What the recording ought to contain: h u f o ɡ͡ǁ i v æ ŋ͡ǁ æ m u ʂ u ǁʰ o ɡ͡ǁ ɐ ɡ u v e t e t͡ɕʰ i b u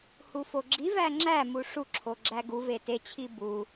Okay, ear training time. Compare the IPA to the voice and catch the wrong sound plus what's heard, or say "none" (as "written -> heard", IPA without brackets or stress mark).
ɐ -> æ